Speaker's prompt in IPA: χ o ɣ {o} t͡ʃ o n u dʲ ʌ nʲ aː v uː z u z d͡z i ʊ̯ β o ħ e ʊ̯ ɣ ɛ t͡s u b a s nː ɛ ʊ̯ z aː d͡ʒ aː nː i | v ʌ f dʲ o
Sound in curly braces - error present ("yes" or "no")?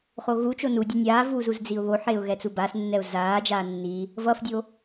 yes